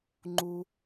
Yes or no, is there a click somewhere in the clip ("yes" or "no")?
yes